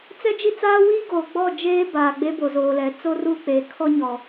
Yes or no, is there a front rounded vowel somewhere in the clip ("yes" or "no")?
no